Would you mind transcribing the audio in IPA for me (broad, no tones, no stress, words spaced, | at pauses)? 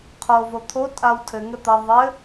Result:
qʰo vot̪ʰo tʼawtʰɘ ŋɘt̪ɐ ðˤɘ